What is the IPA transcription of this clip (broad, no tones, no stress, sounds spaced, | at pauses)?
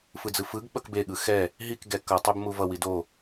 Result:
f ɯ d͡z ɯ f ɯ ɡ ɓ ʌ k b e ɠ ɯ x ɛ | ɦ i k ɡ ɛ k ʌ tˤ e b m u v ʌ w i d o